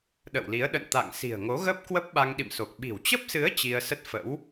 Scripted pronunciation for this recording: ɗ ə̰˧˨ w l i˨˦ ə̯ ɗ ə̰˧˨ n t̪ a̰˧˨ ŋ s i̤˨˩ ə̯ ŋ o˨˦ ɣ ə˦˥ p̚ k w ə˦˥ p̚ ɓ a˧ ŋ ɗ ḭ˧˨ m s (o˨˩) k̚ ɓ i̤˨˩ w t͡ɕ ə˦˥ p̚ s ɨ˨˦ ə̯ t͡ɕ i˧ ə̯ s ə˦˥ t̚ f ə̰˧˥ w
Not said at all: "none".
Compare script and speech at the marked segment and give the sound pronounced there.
o˨˩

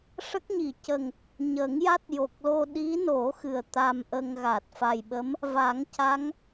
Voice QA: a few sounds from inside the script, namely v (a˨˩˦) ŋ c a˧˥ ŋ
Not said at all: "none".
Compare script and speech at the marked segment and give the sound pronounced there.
a˨˩˦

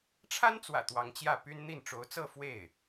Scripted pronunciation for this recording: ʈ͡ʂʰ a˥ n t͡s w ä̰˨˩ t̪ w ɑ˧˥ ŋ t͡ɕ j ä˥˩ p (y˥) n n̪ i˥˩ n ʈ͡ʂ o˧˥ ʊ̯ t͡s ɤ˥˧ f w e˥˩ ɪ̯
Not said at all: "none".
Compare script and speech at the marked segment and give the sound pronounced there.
y˥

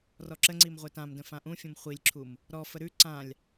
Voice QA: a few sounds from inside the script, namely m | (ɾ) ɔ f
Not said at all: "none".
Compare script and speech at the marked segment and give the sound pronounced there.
ɾ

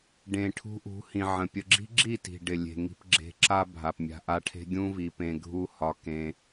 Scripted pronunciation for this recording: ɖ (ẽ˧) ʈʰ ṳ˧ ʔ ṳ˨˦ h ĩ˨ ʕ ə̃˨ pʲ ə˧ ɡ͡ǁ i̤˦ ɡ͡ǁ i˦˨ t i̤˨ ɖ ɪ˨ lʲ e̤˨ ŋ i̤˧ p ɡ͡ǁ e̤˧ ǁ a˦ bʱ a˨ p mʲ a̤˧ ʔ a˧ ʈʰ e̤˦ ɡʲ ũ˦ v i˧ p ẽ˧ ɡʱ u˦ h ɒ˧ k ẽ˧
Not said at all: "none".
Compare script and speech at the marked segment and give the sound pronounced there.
ẽ˨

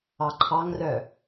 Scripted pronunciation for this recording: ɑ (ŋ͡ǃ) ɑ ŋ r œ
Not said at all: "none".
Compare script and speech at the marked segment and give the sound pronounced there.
ǃʰ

